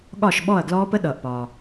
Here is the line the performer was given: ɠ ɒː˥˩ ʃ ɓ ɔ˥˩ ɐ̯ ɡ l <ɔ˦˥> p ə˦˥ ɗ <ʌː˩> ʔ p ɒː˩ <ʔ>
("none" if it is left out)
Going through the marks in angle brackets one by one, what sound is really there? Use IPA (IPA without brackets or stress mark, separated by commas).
ɔː˦˥, ʌː˩, none